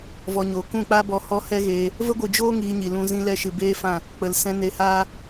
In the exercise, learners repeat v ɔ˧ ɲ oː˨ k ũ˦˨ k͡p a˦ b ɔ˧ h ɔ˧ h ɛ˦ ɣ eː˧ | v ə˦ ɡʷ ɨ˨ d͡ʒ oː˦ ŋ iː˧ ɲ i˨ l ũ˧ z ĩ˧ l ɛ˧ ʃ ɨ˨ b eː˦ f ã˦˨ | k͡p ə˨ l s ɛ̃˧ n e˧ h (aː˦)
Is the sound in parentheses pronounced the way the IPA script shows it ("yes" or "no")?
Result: yes